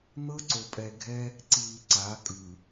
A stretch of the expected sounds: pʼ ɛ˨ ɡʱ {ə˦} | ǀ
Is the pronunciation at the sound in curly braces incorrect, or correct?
incorrect